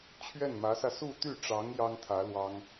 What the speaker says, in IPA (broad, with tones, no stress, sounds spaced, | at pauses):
t͡ɕʰ ɥ ɛ˥˩ n m ä˧˥ s ä˧ s u˥˧ t̪ y˥˩ ʈ͡ʂ ɑ˧˥ ŋ j ɑ˥ ŋ t̪ʰ ä˧˥ l w ɑ˥ ŋ